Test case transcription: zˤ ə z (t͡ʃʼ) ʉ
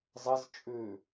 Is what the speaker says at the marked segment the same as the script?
yes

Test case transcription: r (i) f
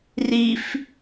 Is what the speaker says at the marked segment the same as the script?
yes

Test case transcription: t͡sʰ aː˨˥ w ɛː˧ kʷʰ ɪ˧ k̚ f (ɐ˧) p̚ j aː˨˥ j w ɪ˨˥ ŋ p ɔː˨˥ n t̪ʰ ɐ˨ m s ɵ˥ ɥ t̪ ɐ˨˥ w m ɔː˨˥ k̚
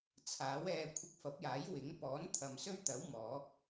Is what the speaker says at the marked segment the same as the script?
no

